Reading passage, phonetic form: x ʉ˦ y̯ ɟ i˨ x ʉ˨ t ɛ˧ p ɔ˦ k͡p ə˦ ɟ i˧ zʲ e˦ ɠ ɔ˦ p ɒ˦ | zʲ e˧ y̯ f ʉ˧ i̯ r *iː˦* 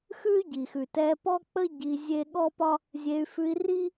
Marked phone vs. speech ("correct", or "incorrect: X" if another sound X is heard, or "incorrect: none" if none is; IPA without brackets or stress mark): incorrect: i˦